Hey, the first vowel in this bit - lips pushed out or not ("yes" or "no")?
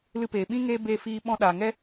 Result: no